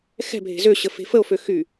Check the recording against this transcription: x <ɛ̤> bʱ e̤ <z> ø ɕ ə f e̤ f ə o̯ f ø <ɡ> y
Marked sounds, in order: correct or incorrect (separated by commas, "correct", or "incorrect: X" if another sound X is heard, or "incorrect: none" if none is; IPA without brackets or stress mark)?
correct, correct, incorrect: x